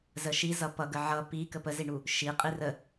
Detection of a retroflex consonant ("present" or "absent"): present